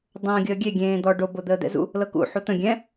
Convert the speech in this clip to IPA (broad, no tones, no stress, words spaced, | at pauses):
dˤõːɡʲəːɡʲe ɡʲẽːd̪ɔ ɖo bod̪əːd̪ɛ̰zṵ | lɤkṵ ħut̪ə̃ ɡʲɛ̃